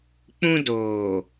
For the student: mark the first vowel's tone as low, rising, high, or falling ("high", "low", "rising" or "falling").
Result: high